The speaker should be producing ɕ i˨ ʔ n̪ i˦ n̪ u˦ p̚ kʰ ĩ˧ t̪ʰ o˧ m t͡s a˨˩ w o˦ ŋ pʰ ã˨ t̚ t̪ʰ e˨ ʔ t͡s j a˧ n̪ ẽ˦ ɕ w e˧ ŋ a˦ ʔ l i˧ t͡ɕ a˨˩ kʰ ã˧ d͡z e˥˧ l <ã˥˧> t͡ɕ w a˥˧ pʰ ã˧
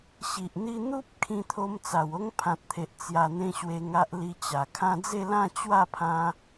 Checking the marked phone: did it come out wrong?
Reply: no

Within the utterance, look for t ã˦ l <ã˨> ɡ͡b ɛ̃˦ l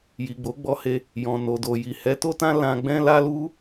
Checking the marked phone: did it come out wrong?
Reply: yes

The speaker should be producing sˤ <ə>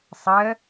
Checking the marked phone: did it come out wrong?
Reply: no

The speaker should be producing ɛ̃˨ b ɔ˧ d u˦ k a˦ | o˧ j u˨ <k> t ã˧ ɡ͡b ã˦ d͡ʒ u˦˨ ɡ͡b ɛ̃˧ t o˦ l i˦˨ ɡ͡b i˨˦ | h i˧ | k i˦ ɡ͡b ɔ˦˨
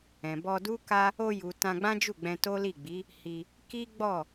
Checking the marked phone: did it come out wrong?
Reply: yes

